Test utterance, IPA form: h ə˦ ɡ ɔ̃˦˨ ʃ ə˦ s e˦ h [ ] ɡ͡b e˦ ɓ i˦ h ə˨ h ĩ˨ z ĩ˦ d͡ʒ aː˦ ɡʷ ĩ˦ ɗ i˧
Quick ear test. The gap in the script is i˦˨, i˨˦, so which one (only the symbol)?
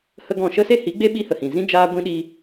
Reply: i˨˦